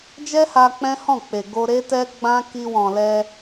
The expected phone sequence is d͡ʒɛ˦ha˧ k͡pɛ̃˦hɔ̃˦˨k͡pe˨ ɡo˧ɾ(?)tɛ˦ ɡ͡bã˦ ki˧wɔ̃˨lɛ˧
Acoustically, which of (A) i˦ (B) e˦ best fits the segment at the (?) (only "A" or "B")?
B